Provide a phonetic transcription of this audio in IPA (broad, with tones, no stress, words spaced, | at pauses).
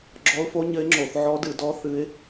ɡ͡ǁɔ˧˥ʊ̯fo˧˥ ɲɘ˧˥ɪ̯ŋ͡ǁo˧˩˧θ ʕɔ˧˥dɨ˧˩˧dɔ˧˥ θɨ˧˥ɪ̯